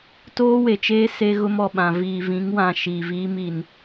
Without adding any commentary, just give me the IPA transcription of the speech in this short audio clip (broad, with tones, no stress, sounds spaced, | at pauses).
t oː˦ w e˨ t͡ʃ eː˦ s e˦ ɣ ʊ˦ m ɔ˨ ɓ ã˨ v iː˨ v ĩ˨˦ ŋ w ã˨ ʃ iː˨ v iː˦ m i˨ n